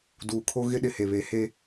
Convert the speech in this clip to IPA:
d uː˨ kʰ o˦ ɣ ɪ˦ ɗ ɪ˨ h e˨ β e˨˦ h e˦

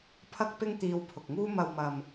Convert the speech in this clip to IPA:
pʰ ɐ˧ k̚ p ɪ˧ ŋ t̪ iː˧ w pʰ ʊ˨ k̚ ŋ uː˥ m ɐ˨ w m ɐ˨ m

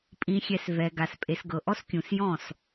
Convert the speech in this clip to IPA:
pʼ ĩ˨ xʲ ɛ˨ s v ɛ˨ ɡ a˨ s pʼ e˨ s ɡ ɤ˨ ʔ ɔ˦ s kʲ ũ˨ s j ɔ̃˦˨ s

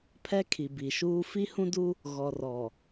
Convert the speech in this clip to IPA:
pʰ ɛ˦ kʰ i˨ b i˨ ʃ uː˦ f i˦ h ũ˦ d u˦ | ɣ ɔ˨ r ɔ˨

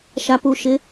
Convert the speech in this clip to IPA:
ʃ a˨ p u˨ ʃ ɪ˨˦

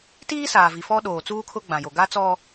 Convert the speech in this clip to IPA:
t iː˦ s aː˨ v i˨ f ɔ˦ ɗ oː˨ t͡s uː˦ kʰ ʊ˦ ɡ͡b ã˨ j o˨ ɡ a˦ t͡s ɔ˦

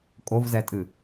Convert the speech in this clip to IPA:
kʼ o v z ɛ tʼ ɨ

